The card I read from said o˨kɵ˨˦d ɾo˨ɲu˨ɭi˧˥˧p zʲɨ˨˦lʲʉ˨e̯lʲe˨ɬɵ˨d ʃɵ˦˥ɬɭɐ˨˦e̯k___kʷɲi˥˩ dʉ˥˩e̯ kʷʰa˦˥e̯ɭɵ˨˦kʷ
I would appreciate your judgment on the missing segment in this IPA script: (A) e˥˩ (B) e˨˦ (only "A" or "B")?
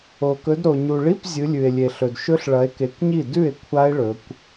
B